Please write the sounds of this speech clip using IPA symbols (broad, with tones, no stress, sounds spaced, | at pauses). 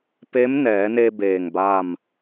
p e˧˥ m n ɛː˩˧ n e˧ b eː˧˩ ŋ b a˥˨ m